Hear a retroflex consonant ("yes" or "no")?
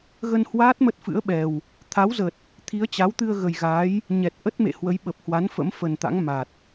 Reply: no